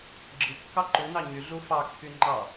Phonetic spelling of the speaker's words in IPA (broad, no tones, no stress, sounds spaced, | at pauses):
ɡ͡ǁ ɯ kː ɑ ǃ u n ɑ ɲ y ɮ u f ɑ kː y ŋ͡ǃ ɑ